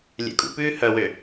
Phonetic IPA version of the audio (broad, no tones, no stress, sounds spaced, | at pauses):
lʲ ɛ̰ kʼ ṵ p ʉː h œ w ø